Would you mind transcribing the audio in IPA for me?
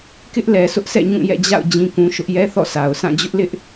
k ɪ˦ ʔ l ɛ˨ sʰ ʊ˦ ʔ sʰ ɛ̰˦˨ ɲ ũ˦˨ j ɛ̰˦˨ d͡ʑ a̰˦˨ ʊ̯ d͡ʑ ĩ˦ k ũ˦ ʃ ʊ˦ ʔ j ɛ˦ θ ɔ̰˦˨ s a˨ ʊ̯ sʰ ã˦˨ d͡ʑ ʊ˦ ʔ l ɪ˦ ʔ

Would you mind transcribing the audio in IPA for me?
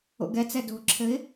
o̰ ɡ ɛ t͡s ɛ d o̤ ǁʰ ɘ ɪ̯

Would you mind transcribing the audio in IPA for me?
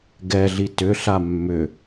ɡ ɛ ɮ i t ʏ ɬ a mː ʏ

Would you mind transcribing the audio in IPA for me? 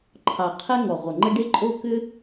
ǃʰ ɑ˨˩ qʰ e˥ ŋ ɔ˨˩ ʁʷ ə˨˩ ŋ͡ǃ ə˥ ɖ e˥ ǃʼ o˥ k ʏ˥

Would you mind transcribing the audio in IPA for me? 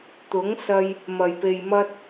t̪ ʊ˨˥ ŋ s ɐ˧ j | m ɐ˨˩ j p e˨ j m ɐ˥ t̚

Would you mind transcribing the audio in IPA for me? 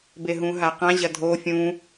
b e ɦ ũ ɦ a q ã ʑ ɐ dʱ o fʲ ũ

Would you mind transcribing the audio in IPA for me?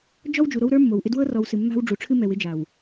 d͡ʒ ɔ˦ w d͡ʒ u˨ ɾ o˦ w ɾ ə˞˦ mː o˨ w ʔ ɪ˦ d w ɤ˦ r ɔ˨ w s ɨ˨ mː a̤˦ w ɖ͡ʐ u˨ ʈ͡ʂʰ ɨ˦ m ɛ˨ w ɪ˦ d͡ʒ a˨ w

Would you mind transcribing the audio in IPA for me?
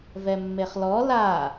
v ɛ mː e χ l ɔ l a

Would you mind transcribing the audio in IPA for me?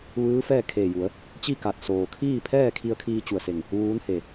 ʋ ɯː˧˥ f ɛː˥˨ kʰ eː˧˩ j u˩˧ ə̯ | t͡ɕ i˥˨ k a˧˩ t̚ s oː˩ kʰ iː˥˨ pʰ ɛː˥˨ kʰ i˧ ə̯ kʰ iː˧ t͡ɕ u˧˩ ə̯ s e˧˩ ŋ | ʋ uː˧˥ n h e˧˩

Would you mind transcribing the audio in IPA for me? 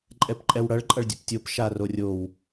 ǃʼ ɛ p ǃʼ ɛ w ɽ ʌ ɭ ǃʼ ʌ ɭ dʲ ɘ p tʲ o p ʃ a r o rʲ o w

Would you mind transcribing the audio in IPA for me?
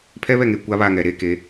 pʰ ɛ˦ β ɛ˦˨ ŋ e˨ kʷ a˦ β a˦˨ ŋ ɛ˨ ɾ e˦ k e˨˦

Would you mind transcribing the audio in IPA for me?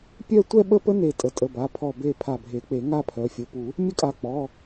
pʲ œ˥˧ tʷ ɛ˥˧ ɓ ə˥˧ p ə˦˥ n e˧˩ tʼ ə˩˧˩ tʼ ə˩˧˩ b a˩˧˩ pʰ ɔ˧˩ b e˧˩ pʰ a˧˩ bʱ e˨˩˦ k͡p e˨˩˦ ŋ a˥˧ pʰ œ˩˧˩ fʲ ə˩˧˩ p u˨˩˦ | mʲ ə˥˧ kʼ a˧˩ k͡p ɔ˩˧˩

